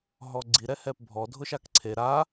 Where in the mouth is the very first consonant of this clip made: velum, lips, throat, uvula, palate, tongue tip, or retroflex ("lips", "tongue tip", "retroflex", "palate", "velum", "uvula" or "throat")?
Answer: throat